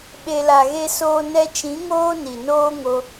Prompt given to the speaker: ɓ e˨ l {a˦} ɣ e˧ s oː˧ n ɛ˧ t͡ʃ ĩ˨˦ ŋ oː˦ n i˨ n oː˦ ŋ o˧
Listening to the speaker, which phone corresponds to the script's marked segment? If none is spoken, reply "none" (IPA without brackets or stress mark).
a˨